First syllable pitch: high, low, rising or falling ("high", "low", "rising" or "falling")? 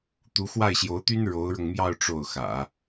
rising